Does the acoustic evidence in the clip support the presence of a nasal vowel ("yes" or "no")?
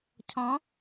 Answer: yes